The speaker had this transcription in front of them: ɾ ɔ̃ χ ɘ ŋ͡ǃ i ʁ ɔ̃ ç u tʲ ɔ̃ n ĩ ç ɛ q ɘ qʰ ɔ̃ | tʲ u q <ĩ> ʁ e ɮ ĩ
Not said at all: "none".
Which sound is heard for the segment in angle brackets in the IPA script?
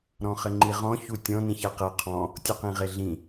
ĩ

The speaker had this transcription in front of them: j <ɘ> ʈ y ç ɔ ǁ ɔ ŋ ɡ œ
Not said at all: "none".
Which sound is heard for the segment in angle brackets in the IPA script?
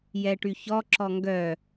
ɛ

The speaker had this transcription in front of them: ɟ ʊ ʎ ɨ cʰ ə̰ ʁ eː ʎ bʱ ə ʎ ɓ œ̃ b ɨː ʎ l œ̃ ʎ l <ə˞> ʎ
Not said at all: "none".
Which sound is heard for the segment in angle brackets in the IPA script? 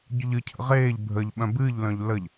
ə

